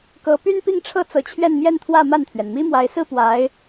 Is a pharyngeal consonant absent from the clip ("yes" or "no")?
yes